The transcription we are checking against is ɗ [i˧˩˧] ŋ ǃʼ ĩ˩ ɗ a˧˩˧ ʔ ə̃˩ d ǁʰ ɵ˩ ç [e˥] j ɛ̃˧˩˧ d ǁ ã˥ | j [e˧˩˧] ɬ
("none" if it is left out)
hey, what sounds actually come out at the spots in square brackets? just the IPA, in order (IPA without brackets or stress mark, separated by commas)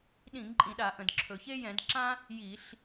ĩ˧˩˧, e˥, i˧˩˧